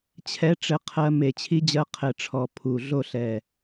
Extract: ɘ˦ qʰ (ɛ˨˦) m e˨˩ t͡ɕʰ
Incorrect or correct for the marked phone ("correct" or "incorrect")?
incorrect